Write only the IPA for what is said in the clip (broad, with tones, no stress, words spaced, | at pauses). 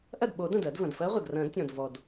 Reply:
ʔɐ˥˩d ɓo˨˩˦dɐ̃˩d ɜ˨˩˦dvɐ̃˩d fɜ˧˥ʁʷɐ˩drɐ̃˨˩˦d tʲɔ̃˩dvɔ˩d